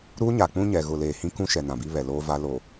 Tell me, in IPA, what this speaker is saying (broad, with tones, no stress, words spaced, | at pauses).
ɾuː˦ɲa˨k͡pũ˦ ɲɛ˨ ɣʊ˨leː˨hĩ˦ kũ˦ʃɛ˨ nã˨bi˦βɛ˨loː˦ va˦ lo˨